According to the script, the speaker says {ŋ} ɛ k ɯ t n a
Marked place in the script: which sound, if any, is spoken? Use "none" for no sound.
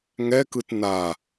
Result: ŋ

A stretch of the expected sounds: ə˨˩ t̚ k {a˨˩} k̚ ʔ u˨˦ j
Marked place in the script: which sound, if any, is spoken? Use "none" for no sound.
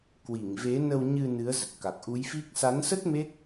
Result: a˨˩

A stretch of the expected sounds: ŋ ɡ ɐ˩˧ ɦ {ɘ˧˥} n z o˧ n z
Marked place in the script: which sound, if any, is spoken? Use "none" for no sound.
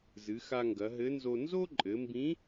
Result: ɘ˧˥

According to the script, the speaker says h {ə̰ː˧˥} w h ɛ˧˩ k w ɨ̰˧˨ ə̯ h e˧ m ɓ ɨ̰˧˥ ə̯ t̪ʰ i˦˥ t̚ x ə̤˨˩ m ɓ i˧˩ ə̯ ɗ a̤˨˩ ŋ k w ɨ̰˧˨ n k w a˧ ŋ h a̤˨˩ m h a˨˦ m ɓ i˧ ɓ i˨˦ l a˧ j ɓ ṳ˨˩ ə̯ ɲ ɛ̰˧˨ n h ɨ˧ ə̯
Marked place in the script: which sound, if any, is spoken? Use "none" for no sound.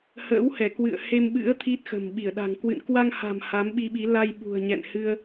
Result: ə̰ː˧˥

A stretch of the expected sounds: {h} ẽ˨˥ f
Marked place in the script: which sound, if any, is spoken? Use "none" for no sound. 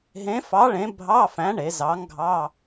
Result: ɦ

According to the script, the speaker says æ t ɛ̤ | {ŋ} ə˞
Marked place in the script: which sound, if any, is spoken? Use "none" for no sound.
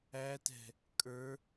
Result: kʼ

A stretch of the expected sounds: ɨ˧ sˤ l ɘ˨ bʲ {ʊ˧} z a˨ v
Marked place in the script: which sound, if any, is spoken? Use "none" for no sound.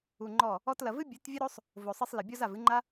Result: ɔ˧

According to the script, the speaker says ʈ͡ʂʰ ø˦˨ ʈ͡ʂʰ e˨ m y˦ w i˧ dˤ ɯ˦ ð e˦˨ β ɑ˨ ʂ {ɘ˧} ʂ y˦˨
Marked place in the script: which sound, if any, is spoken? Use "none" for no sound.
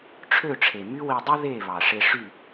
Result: e˧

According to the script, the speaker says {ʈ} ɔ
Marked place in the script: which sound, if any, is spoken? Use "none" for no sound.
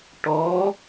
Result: ʈ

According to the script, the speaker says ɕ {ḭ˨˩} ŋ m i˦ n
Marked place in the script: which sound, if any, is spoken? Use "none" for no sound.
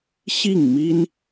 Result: i˥˨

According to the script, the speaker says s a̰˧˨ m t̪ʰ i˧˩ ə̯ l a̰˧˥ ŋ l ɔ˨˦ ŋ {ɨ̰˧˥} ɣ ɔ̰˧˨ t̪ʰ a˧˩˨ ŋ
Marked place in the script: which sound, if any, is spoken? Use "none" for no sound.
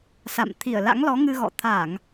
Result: ɨ˧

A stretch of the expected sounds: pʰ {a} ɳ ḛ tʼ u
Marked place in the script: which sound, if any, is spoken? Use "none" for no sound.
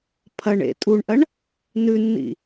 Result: ɐ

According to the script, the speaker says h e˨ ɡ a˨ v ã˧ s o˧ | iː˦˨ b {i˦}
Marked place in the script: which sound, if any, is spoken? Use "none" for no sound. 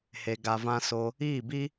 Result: i˦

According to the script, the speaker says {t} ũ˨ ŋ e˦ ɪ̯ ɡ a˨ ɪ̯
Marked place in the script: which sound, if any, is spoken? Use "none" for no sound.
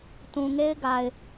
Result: t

